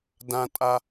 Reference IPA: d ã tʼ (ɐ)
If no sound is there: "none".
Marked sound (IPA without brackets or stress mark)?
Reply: a